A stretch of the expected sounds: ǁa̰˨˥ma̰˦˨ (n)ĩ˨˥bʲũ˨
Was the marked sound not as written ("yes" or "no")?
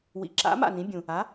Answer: no